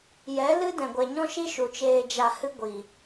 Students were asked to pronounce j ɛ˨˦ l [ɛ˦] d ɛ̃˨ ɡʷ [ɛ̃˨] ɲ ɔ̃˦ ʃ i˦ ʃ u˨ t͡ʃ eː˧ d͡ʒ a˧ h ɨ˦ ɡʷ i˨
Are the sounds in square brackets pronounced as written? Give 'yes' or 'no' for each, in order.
no, no

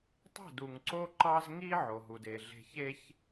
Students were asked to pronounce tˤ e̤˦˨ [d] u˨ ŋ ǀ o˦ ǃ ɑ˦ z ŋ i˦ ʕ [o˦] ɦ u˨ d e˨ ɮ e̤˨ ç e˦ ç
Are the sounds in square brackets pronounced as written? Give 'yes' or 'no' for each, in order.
yes, no

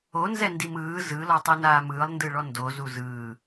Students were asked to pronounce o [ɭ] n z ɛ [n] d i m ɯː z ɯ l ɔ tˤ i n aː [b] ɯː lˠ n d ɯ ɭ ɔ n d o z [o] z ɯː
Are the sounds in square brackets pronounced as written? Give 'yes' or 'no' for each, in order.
no, yes, no, no

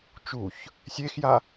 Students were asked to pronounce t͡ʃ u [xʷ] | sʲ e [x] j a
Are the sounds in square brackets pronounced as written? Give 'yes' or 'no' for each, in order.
no, yes

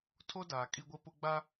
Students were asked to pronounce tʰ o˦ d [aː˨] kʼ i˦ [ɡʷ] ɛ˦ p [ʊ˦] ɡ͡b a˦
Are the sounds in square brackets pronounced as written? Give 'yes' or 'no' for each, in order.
yes, yes, yes

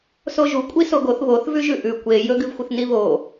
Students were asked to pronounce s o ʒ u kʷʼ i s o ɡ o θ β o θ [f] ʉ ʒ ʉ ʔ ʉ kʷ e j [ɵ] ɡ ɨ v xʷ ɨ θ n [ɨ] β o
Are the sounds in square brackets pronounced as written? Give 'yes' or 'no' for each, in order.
no, yes, no

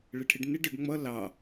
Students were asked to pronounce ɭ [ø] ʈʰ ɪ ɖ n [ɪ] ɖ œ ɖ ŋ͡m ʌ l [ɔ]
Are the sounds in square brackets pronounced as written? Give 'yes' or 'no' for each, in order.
no, yes, no

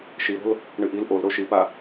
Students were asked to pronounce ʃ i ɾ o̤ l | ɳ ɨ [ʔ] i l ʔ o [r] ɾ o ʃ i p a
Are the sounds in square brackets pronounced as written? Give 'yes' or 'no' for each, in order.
yes, no

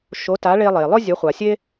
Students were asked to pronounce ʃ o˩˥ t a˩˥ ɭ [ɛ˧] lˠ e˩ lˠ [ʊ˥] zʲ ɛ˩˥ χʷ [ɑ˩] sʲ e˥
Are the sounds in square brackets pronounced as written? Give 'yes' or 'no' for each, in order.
no, yes, no

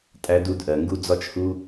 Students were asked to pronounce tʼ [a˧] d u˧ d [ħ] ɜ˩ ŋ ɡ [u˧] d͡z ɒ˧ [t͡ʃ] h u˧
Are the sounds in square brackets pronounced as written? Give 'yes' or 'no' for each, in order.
no, no, yes, yes

